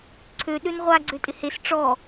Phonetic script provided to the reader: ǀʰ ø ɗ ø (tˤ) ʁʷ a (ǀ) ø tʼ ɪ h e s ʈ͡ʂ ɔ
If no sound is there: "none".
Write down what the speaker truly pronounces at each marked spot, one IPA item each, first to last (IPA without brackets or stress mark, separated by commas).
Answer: n, ɡ͡ǀ